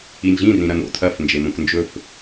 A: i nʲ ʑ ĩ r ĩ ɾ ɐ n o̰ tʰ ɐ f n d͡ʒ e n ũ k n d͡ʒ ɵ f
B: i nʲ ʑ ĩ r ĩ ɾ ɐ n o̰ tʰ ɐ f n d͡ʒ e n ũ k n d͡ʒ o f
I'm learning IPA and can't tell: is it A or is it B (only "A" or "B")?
A